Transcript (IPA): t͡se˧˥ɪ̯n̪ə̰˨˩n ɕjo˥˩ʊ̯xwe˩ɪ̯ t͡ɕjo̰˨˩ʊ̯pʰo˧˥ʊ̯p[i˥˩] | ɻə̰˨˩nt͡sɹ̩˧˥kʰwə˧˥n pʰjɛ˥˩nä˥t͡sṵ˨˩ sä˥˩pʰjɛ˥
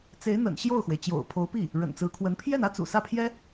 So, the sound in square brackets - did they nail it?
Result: yes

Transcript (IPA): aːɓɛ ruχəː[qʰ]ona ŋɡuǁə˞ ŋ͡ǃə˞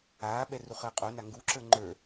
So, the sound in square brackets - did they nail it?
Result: no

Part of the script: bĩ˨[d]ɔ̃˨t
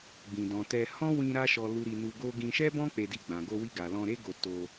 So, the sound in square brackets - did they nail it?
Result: yes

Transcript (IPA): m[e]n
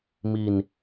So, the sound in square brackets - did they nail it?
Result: no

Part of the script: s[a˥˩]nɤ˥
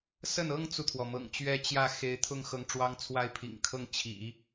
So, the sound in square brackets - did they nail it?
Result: no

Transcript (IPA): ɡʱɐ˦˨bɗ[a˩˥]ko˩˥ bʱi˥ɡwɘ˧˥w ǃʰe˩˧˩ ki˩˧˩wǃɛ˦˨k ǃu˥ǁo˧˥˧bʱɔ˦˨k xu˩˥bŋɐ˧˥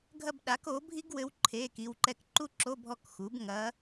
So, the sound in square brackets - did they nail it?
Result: yes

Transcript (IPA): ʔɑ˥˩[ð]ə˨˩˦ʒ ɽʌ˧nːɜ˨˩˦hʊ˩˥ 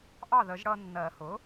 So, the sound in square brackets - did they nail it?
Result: yes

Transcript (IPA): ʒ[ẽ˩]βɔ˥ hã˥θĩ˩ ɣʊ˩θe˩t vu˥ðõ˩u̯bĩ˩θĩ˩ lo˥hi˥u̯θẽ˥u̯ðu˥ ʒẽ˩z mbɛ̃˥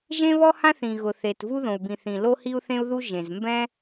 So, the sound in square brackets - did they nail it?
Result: no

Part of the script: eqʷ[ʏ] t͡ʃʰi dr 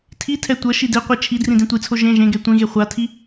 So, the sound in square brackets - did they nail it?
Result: no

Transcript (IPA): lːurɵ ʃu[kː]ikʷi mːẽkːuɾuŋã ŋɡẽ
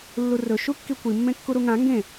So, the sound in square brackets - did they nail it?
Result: yes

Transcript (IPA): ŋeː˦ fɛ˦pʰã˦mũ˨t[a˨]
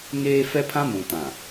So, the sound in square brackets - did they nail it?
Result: no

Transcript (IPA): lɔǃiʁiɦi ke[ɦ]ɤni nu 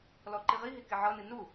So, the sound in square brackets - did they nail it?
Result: no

